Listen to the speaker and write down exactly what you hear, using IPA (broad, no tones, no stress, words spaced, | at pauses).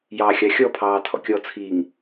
jɑxʲɑ xʲɔpʰɑː tʰɔ̰kʲɔt͡sʰiːŋ